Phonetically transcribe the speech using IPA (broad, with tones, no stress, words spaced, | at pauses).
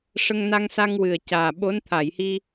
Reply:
ʂə˧ŋna˧ŋsa˧ŋ wɨ˨˩ə̯caː˨˩ɓo˧˥n t̪ʰa˨˩˨jhi˧